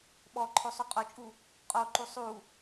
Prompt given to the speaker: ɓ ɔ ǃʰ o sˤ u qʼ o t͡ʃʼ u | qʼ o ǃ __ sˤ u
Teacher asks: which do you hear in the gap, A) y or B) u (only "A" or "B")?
B